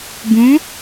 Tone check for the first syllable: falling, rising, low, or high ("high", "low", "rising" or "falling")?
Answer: rising